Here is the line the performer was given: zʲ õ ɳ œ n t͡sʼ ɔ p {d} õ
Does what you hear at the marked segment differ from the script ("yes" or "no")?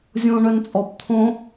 yes